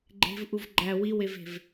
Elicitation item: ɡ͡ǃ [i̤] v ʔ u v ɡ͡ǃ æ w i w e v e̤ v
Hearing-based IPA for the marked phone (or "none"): e̤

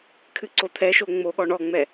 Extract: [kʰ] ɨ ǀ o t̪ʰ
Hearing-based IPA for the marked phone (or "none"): kʰ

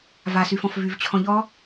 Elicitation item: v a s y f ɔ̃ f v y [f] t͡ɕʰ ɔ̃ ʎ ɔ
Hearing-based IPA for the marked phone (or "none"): v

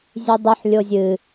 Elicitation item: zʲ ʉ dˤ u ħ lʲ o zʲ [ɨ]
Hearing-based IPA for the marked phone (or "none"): ɨ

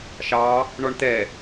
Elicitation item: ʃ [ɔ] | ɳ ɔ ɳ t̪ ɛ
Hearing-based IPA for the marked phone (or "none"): ɑ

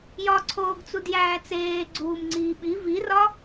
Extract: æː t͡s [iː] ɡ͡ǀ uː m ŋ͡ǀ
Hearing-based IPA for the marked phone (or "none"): eː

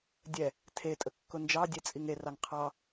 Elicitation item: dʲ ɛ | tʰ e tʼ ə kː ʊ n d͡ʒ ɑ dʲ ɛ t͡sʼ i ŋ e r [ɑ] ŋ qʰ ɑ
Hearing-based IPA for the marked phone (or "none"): ɑ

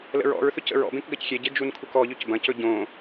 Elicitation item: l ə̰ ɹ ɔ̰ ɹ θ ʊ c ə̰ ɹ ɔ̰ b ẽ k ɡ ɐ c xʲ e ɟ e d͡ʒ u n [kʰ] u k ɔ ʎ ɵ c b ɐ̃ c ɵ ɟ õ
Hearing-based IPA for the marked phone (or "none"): kʰ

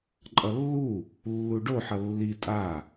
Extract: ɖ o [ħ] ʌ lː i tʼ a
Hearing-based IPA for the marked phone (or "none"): ħ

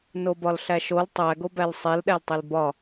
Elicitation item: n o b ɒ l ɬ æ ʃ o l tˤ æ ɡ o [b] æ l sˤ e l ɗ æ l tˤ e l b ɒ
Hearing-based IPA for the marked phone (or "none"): b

